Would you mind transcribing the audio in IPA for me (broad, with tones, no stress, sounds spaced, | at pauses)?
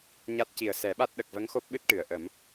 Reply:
ɲ a˦˥ t̚ c i˨˩ ə̯ s ɛ˨˩˦ ɓ a˦˥ t̚ ɗ ə˨˩ k̚ v ə˧˥ ŋ x o˦˥ p̚ ɓ ɨ˦˥ t̚ ʈ ɨ˨˩˨ ə̯ ʔ ə˨˩˦ m